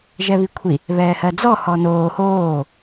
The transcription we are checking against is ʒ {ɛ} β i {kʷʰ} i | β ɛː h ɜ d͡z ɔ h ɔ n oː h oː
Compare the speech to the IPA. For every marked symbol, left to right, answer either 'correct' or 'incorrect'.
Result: correct, correct

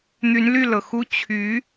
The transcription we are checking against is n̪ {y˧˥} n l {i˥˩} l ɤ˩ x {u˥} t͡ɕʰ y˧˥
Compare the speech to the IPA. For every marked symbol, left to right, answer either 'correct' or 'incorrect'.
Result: correct, incorrect: y˥˩, correct

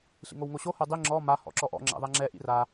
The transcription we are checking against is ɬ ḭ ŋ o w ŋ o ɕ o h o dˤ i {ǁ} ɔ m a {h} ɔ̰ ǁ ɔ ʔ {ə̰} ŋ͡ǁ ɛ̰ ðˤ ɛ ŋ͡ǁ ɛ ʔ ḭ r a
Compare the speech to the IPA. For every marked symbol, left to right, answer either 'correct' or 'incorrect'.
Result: incorrect: ŋ͡ǁ, correct, incorrect: ɔ̰

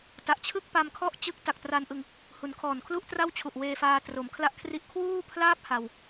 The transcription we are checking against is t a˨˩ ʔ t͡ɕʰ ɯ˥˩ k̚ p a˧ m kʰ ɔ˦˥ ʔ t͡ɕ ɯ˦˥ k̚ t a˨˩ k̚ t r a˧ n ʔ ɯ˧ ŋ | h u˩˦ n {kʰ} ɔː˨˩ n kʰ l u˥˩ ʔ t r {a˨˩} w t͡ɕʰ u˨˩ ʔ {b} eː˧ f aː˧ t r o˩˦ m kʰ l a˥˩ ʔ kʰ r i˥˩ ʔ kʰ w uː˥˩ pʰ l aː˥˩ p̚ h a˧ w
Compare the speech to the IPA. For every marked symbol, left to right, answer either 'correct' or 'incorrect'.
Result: correct, incorrect: a˥˩, incorrect: w

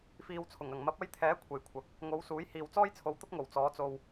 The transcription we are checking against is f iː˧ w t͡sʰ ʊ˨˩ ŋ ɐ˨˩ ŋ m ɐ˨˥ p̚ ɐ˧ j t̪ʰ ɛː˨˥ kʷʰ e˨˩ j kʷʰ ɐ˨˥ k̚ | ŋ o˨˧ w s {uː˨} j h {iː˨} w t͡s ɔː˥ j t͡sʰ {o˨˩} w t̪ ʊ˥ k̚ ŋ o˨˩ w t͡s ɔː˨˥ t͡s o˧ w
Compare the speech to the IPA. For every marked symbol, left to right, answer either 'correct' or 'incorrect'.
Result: incorrect: uː˨˥, correct, incorrect: o˨˧

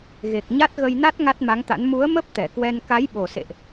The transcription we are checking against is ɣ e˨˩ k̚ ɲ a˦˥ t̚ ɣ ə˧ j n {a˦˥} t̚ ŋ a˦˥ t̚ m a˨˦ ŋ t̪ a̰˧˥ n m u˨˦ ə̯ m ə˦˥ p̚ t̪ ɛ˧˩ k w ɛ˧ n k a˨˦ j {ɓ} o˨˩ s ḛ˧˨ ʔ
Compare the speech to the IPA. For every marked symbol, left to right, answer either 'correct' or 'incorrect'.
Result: correct, correct

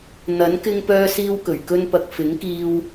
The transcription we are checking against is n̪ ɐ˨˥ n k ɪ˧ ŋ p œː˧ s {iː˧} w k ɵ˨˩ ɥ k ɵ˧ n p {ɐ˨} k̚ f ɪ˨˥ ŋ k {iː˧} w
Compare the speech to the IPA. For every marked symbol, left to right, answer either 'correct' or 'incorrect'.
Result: correct, correct, correct

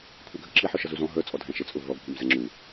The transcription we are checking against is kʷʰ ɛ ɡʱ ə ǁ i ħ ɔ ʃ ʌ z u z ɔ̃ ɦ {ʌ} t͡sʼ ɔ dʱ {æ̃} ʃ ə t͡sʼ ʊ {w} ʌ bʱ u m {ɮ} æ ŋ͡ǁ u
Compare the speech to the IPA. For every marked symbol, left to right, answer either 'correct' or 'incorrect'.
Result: incorrect: ə˞, correct, incorrect: v, incorrect: z

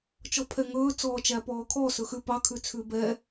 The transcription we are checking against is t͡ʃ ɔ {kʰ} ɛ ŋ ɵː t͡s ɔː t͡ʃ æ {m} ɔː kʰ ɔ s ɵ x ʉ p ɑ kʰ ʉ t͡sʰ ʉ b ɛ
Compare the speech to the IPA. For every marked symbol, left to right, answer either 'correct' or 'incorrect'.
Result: incorrect: pʰ, incorrect: p

